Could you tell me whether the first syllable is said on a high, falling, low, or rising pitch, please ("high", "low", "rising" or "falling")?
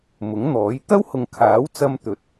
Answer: rising